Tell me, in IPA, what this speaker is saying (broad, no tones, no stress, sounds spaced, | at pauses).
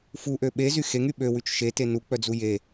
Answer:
f u ʔ ø ɓ e z y x e ŋ y ɓ ø w ʉ t͡ʃ ʃ e t e n u k͡p œ d͡z u j e